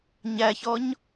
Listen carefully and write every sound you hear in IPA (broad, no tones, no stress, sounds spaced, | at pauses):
ɲ æ ç ɔ ɲ